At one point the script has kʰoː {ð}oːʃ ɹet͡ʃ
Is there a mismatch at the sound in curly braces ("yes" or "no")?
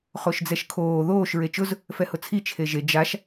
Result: no